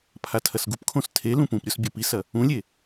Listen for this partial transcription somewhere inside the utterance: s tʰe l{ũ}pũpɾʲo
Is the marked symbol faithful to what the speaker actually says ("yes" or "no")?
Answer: yes